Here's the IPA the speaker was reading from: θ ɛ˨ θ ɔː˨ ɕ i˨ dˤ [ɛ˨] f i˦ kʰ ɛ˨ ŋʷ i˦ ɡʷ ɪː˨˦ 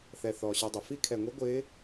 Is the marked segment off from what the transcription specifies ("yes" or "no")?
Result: yes